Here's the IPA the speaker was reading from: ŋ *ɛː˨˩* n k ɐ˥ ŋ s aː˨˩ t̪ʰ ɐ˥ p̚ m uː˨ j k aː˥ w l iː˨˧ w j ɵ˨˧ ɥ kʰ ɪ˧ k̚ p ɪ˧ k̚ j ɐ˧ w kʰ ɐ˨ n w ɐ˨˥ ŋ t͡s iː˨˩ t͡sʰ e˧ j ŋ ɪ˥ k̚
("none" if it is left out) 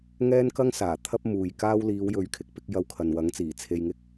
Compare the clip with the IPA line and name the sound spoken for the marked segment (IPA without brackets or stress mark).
ɛː˥